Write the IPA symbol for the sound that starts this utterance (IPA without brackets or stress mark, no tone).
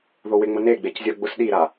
ð